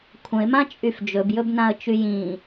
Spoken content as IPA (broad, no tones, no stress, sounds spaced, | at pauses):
kʷʰ ə̃ ɪ̯ m ã t͡ʃʼ y f d͡ʒ ɵ b j ɵ b n ã ə̯ t͡ʃ y j ĩ